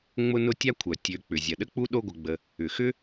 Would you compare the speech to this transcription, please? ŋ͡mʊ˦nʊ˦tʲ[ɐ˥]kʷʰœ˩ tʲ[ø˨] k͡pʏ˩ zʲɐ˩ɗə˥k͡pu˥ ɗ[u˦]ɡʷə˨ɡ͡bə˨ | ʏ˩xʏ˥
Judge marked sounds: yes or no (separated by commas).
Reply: no, yes, no